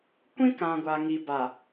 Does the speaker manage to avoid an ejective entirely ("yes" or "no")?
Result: yes